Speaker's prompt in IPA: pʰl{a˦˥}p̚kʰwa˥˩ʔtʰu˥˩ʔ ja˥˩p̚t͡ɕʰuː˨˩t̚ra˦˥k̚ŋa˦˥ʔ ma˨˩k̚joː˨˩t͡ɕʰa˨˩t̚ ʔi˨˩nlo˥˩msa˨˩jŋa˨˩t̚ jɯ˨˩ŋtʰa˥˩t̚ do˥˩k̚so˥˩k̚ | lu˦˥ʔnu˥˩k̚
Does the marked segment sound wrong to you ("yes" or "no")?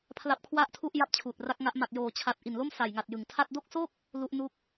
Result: no